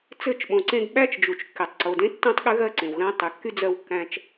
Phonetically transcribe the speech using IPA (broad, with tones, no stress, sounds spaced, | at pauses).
t͡s ɘ˦˨ t͡ʃ ɓ õ˨ ǀ ẽ˦ ɡ ɓ æ˦ t͡ʃ d͡ʒ u˨ t͡ʃ kː e˨ tˤ ǀ o˨ d ẽ˦ tː õ˦ tˤ ɠ ɘ˦ ɣ ɜ˦ ǀ ẽ˨ w ɣ æ̃˦ tˤ y˨ kː y˦ d͡z ɜ˦ w kː æ̃˦ t͡ʃ